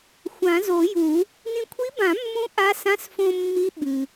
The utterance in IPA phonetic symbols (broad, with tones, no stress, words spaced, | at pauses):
xʷã˨˩˦zo˨˩˦ju˨˩˦ | nĩ˧kʷʰi˧˥bã˨˩˦ mːũ˧˥ ʔa˧˥sã˧˥˧s fõ˧ mːi˧˥ ɓɨ˩